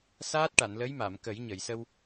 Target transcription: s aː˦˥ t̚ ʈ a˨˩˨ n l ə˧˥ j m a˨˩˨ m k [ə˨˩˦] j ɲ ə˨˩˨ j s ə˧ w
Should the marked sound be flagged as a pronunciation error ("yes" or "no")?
no